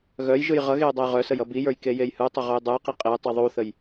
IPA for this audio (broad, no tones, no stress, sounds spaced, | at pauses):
ɣ œ j ʒ ɯ j ʁ ʌ ɣ e j dˤ ʌ j ʁ œ s ə j ʌ b i j ə˞ j k e j e j h ɯ tˤ ə ʁ u j dˤ ɯ j q i qʼ e j tˤ i ðˤ u θ ə j